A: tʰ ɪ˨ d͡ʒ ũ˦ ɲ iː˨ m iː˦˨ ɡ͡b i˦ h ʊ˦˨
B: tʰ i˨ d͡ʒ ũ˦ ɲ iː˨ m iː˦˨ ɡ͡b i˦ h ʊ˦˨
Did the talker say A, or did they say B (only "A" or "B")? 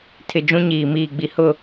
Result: A